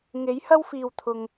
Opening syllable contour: rising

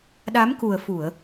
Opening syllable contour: rising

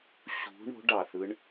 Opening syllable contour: rising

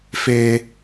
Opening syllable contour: high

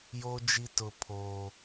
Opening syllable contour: high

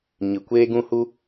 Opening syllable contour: low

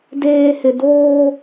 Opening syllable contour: low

